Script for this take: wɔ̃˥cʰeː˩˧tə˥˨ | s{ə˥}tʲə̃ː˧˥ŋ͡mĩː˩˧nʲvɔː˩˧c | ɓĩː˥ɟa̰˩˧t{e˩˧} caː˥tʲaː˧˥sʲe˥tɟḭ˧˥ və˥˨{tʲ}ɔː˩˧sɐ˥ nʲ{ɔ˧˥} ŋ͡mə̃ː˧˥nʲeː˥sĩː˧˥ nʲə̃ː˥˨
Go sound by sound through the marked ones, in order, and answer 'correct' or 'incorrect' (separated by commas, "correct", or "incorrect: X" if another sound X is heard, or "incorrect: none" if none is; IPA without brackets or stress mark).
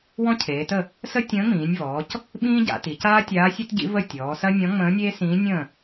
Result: correct, incorrect: i˩˧, correct, incorrect: ɔ̃˧˥